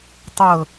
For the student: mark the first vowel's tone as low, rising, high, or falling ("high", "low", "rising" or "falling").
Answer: low